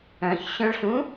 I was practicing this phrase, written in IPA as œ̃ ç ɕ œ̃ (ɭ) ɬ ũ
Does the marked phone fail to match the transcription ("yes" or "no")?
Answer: no